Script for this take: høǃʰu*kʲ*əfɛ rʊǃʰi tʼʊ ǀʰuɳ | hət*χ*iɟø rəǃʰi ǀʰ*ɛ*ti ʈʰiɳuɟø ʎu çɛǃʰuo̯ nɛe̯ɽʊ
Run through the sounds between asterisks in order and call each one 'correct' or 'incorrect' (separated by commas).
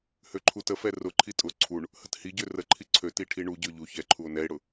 incorrect, incorrect, incorrect